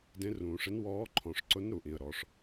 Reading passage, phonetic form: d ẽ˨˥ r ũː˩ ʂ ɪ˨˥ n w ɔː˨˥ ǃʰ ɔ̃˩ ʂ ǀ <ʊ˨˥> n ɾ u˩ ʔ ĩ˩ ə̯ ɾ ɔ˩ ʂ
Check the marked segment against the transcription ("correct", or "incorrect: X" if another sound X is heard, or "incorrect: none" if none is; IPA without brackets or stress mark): correct